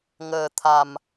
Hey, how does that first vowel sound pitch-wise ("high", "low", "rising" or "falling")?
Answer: low